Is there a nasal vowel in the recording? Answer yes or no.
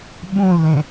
yes